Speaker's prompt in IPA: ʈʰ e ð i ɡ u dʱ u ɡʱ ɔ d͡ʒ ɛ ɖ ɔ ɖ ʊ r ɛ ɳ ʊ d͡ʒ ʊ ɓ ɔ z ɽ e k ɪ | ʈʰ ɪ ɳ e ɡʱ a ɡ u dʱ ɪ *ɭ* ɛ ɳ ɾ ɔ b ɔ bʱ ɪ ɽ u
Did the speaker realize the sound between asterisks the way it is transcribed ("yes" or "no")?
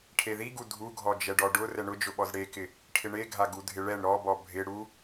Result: yes